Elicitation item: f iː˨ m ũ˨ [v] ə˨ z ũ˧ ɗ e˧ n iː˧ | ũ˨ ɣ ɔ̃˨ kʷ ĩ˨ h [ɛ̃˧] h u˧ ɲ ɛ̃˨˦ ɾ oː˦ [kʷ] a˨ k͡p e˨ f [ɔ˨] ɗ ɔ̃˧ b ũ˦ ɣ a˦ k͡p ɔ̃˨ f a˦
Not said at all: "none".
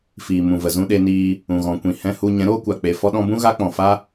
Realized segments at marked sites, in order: v, ɛ̃˧, kʷ, ɔ˧

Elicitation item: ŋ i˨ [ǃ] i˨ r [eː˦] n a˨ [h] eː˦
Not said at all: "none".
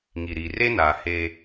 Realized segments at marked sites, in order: ɾ, e˦, h

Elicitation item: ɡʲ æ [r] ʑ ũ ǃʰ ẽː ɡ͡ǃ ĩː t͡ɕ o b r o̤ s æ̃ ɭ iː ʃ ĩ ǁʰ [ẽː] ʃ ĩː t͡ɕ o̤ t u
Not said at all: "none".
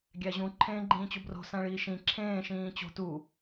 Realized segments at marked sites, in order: none, ẽː

